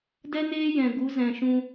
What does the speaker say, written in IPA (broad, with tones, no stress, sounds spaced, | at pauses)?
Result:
d ɛ˦ n eː˦ j ɛ̃˨ ɡ u˨˦ z ɛ̃˨ ʃ ũ˧